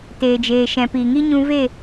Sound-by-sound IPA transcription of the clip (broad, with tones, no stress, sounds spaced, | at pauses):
t eː˨ d͡ʒ eː˨ ʃ ɛ̃˨ p iː˨ ŋ i˧ ɲ ũ˧ v e˦˨